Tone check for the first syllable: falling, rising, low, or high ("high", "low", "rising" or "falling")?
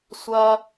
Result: high